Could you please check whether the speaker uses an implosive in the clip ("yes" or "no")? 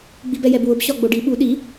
yes